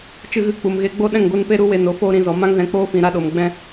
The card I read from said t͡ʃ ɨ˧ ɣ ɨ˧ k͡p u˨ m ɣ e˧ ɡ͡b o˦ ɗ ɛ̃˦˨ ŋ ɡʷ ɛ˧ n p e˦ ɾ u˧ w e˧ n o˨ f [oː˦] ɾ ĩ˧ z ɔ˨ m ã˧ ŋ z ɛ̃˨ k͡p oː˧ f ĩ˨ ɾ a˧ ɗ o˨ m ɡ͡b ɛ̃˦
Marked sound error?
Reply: no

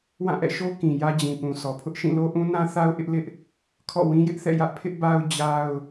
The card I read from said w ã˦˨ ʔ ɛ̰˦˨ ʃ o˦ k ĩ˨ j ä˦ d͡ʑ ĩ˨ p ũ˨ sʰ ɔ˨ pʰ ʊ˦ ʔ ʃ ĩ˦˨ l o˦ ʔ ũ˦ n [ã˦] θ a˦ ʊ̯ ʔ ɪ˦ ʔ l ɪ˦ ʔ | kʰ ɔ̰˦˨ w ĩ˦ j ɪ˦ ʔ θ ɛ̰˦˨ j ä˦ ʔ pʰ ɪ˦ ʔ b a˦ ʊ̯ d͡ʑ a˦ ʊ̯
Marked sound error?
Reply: no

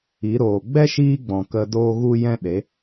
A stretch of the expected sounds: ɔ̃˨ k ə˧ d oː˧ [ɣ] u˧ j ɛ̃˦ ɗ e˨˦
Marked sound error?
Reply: no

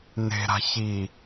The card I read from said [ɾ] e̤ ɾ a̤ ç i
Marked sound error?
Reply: yes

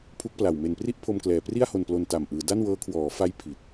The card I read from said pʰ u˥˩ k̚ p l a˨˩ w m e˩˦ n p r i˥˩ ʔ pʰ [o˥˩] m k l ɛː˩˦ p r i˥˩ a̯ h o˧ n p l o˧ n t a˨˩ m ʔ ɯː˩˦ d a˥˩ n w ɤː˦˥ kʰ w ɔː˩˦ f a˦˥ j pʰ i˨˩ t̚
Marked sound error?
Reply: yes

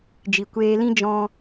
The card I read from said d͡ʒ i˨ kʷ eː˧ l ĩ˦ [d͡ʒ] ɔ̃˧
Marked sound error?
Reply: no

